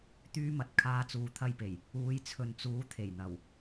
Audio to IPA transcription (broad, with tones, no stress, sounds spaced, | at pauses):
t̪ yː˥ m ɐ˧ t̚ kʰ aː˧ t͡s uː˨ t̪ʰ ɐ˧ j p e˨˩ j | uː˨˧ j t͡sʰ ɵ˨ n t͡s uː˨˥ t̪ʰ e˨˩ j n̪ ɐ˨˩ w